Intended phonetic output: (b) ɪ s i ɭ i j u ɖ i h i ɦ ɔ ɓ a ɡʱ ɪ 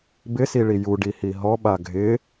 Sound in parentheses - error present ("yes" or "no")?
no